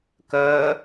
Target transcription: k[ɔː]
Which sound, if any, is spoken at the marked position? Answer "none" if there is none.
əː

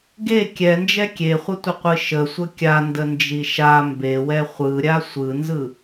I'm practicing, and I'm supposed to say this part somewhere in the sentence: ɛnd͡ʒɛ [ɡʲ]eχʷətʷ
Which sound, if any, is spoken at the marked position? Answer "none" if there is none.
kʲ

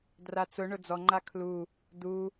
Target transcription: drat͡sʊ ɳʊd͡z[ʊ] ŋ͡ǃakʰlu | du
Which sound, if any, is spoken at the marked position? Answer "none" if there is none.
ɔ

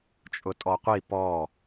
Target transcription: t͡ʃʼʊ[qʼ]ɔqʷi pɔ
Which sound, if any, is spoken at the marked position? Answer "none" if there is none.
tʼ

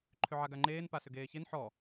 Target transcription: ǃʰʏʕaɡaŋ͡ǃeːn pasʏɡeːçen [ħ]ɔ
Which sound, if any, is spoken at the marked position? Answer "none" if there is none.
ħ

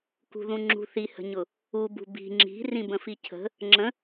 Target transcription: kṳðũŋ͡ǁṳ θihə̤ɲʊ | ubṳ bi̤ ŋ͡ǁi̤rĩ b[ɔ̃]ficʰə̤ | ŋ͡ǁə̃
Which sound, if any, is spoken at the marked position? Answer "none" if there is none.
ə̃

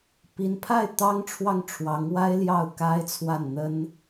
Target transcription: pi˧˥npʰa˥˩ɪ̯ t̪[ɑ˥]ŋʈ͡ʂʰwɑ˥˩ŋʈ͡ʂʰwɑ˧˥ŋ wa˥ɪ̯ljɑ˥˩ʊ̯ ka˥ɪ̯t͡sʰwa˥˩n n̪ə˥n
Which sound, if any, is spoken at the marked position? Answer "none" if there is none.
ɑ˥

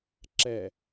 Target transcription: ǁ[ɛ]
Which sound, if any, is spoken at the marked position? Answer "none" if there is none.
ɛ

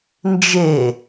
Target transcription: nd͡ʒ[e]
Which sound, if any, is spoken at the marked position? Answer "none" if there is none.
e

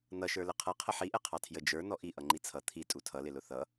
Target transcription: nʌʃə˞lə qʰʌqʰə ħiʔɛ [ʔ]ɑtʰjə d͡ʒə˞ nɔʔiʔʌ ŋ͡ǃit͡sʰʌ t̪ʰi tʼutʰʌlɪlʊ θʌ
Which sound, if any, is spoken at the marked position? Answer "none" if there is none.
qʰ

